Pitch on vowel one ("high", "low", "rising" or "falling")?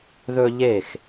high